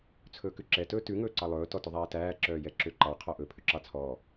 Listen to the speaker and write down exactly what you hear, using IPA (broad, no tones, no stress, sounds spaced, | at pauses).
t͡sʰ ɵː k ʉ ǁ ɛ t ɵː t ʉ ŋ ɵː ǀ ɑ lˠ ɵː t ɔ t ɵ ðˤ æː t æː ǁ œː j ɛ ǁ ø ǃ ɑ qʰ ɔ ʔ ɵ pʰ ʉ ǁ ɑ t͡sʰ ɔː